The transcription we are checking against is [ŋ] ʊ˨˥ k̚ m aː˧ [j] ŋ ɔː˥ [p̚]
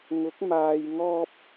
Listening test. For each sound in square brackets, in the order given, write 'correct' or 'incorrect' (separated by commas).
correct, correct, correct